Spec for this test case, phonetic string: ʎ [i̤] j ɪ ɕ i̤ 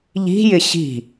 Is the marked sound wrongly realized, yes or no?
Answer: no